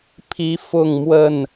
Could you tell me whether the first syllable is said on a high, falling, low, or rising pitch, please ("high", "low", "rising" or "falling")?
rising